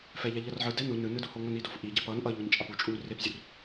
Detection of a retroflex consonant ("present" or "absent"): absent